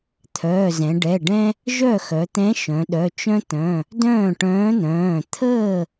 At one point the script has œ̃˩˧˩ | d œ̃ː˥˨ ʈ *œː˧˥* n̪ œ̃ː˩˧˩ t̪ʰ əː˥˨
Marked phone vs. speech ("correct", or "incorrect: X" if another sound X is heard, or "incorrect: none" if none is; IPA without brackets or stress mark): incorrect: œ̃ː˧˥